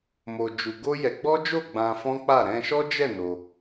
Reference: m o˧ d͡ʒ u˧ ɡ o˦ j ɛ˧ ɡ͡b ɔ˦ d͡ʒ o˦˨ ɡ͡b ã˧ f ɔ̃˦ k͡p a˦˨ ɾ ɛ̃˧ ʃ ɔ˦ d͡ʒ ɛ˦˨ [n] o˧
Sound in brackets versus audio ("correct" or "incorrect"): correct